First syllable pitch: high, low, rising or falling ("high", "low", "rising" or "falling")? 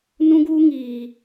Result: high